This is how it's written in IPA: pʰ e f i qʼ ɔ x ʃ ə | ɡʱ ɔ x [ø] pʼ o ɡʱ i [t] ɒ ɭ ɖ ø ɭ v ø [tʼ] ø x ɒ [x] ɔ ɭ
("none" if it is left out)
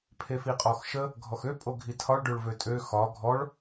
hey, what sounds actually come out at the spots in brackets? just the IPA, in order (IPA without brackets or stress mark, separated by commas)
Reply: ø, tʰ, tʼ, ɡʱ